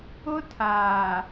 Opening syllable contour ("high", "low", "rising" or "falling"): high